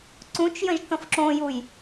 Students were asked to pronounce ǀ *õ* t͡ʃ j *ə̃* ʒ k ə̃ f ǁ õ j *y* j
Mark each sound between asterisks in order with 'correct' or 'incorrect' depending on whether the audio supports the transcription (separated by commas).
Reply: incorrect, correct, incorrect